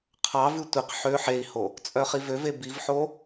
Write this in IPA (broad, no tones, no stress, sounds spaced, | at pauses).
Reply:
qʰ ɑ v ʉ tʷ i q ħ ø ħ e i̯ h o | t͡sʼ œ χ i v ø v e b i v ħ o